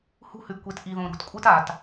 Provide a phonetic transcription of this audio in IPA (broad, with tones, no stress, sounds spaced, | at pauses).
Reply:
h ṳ˦ h ʉ˧ ɡ kʷ e˧ t ʔ i˨ ð õ˨ ɾ ṳ˨ t kʷʼ ɨ˦ t a˨ t